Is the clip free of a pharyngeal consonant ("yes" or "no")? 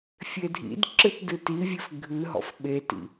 yes